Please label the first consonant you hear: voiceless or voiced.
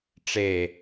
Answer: voiceless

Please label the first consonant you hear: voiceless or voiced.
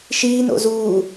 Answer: voiceless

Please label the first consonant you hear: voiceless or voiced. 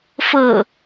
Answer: voiceless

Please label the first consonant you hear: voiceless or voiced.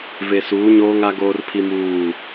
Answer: voiced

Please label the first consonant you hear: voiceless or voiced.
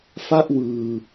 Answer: voiceless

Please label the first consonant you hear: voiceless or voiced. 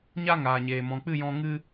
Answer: voiced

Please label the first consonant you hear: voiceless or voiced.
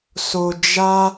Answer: voiceless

